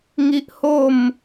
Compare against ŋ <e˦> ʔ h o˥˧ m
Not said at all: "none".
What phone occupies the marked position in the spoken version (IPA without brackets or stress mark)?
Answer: i˦